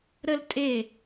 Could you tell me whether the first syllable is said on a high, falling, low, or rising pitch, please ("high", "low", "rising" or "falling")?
high